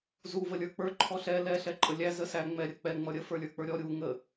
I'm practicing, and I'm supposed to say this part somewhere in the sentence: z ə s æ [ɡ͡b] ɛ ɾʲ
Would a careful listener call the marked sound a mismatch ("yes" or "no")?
yes